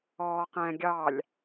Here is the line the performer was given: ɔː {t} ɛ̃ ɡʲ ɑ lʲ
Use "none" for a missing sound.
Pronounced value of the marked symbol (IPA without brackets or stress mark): q